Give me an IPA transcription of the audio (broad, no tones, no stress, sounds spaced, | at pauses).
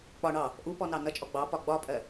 k͡p ɒ ɳ ɑ | ʔ u p ɔ n ɑ n ʌ t͡ʃʼ ɔ ɡ͡b ɑ p ɒ ɡ͡b ɒ pʼ ɜ